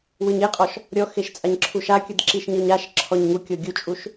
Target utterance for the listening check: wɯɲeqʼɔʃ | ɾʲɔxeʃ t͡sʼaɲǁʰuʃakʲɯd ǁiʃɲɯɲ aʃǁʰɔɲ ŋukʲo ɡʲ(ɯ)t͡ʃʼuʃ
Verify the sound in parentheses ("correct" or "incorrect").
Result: incorrect